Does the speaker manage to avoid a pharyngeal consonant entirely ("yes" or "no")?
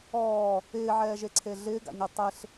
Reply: no